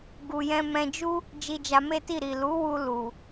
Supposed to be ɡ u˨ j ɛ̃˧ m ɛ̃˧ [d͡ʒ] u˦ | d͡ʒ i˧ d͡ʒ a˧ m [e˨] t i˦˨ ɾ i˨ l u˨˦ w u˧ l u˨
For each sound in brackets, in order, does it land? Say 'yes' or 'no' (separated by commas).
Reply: yes, no